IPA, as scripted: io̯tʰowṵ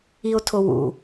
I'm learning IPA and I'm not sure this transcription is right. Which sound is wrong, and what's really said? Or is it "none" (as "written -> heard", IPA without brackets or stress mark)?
none